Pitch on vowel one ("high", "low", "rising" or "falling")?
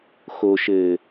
low